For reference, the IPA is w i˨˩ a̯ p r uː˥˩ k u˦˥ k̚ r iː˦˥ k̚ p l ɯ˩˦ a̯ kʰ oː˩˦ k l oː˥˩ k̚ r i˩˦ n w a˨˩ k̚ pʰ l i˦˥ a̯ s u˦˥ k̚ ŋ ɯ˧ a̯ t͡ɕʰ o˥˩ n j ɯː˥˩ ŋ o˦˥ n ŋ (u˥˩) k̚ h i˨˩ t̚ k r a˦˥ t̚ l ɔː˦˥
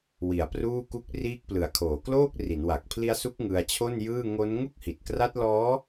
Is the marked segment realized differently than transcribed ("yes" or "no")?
no